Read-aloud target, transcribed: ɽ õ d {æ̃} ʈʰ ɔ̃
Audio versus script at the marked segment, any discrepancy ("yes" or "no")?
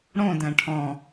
no